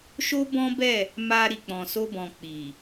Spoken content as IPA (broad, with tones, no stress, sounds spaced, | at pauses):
ʃ o˦ b ɔ̃˦ b ɛ˦˨ | m a˧ ɾ i˨ k͡p ɔ̃˨ s o˧ b ɔ̃˨ k͡p i˨